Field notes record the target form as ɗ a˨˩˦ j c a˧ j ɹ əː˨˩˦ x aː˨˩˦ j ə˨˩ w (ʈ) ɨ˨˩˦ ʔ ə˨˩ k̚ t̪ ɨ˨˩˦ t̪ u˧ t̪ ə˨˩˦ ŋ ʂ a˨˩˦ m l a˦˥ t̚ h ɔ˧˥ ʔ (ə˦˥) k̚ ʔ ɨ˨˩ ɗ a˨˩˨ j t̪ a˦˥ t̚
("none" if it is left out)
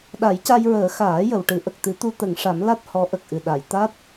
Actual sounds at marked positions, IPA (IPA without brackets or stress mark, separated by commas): ʈ, ə˨˩